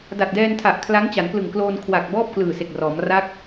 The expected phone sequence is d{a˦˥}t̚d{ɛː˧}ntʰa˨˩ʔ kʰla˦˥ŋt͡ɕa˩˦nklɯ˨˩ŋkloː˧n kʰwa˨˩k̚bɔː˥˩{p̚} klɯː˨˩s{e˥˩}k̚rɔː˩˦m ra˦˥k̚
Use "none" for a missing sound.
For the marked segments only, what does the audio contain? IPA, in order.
a˨˩, ɛː˧, p̚, e˨˩

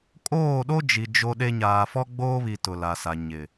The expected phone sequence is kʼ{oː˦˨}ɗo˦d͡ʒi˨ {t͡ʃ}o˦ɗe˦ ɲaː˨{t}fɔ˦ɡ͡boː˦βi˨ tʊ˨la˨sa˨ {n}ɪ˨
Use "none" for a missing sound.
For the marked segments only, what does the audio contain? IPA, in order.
oː˦˨, d͡ʒ, none, ɲ

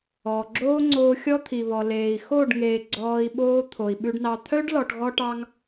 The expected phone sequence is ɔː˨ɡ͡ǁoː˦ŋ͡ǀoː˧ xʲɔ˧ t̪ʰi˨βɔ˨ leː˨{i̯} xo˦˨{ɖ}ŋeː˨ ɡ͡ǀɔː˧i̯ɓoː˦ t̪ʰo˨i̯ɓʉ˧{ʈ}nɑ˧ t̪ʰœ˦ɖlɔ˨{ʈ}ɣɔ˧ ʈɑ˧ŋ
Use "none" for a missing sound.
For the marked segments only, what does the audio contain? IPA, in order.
i̯, ɖ, ɖ, ʈ

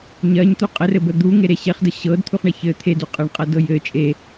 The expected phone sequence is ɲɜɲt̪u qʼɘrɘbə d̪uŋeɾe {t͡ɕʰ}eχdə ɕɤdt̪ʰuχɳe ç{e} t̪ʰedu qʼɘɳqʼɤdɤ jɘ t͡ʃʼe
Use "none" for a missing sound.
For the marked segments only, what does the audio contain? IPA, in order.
ɕ, ɘ

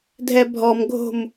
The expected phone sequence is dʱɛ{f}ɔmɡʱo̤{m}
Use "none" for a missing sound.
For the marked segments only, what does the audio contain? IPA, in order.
bʱ, m

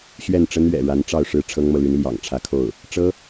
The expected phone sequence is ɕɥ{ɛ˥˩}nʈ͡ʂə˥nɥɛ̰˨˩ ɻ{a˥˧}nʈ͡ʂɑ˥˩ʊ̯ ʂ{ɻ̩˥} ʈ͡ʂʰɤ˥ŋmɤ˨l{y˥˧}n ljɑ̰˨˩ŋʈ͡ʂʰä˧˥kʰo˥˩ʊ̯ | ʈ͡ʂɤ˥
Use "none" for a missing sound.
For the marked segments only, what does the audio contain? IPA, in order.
ɛ˥˩, a˧˥, ɻ̩˥, y˧˥

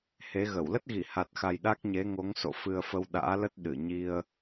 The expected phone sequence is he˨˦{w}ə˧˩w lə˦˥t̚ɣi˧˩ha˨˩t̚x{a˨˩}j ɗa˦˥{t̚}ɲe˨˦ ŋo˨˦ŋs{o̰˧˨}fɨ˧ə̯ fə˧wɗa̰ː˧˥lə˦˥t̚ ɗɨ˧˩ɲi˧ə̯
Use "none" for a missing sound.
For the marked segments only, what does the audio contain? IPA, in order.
ɣ, a˨˩, k̚, o̰˧˨

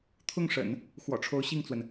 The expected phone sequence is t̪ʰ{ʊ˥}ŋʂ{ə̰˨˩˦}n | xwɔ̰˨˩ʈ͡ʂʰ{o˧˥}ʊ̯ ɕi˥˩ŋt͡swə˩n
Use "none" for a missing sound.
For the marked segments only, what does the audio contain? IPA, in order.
ʊ˥˩, ə̰˨˩˦, o˧˥

